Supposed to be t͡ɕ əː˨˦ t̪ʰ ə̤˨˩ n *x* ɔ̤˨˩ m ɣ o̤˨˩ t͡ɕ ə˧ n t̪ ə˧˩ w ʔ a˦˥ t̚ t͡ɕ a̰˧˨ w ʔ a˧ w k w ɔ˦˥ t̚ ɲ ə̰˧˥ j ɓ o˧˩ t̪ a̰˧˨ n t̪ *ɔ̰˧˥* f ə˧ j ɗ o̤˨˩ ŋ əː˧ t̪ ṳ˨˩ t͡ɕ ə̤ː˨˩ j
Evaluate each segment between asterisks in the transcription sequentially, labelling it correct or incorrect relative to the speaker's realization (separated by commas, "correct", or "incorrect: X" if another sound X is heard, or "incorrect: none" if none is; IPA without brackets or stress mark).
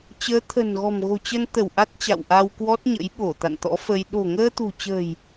incorrect: ɣ, correct